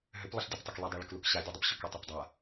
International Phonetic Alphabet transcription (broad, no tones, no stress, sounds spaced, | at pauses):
ɦ ʏ p lˠ ə ɬ dʲ ə p tˤ o k l ə dˤ a ɭ ə k l u k ɕ a dʲ u dˤ ʏ p ɕ ʏ k u tˤ a p dˤ a